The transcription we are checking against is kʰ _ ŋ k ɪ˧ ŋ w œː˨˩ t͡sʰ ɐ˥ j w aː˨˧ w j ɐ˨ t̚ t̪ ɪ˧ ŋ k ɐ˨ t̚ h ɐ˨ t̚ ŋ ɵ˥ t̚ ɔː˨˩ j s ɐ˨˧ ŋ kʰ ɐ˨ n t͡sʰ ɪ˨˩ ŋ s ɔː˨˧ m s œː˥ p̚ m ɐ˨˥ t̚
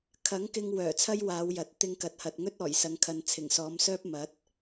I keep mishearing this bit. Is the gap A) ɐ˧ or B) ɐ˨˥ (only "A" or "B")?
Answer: B